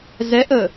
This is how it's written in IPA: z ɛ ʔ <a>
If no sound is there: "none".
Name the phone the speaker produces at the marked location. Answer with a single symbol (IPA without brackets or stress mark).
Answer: ə